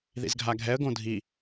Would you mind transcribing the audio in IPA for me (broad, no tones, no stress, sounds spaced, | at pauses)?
ð ḭ z ɡʱ a ɡʱ ɛ ə̯ ɡ õ dʱ i